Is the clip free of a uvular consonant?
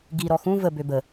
yes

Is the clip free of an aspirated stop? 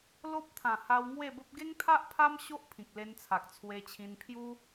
no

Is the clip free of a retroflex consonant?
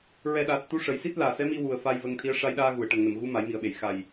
no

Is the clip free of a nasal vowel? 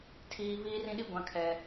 no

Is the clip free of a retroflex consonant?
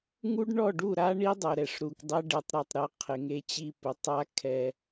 no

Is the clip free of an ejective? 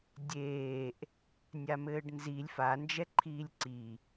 yes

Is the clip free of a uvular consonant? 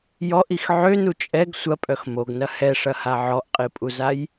no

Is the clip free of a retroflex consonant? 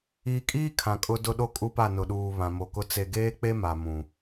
yes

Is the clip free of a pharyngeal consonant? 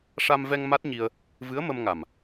yes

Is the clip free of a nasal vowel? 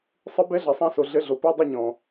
no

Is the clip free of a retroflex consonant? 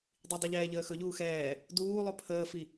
yes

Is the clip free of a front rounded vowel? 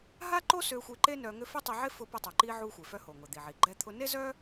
no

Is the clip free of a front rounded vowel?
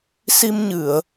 yes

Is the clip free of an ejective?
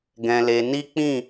yes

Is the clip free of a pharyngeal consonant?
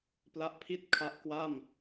yes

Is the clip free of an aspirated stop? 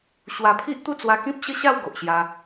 no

